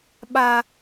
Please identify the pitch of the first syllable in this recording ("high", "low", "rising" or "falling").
high